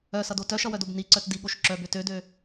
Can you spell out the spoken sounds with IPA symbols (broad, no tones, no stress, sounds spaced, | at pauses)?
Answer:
œ s ʌ d o t œ ʃ ʌ w œ d o b n i ǀ œ t d i ɠ o ʃ ǁ œ b ø t ø d ø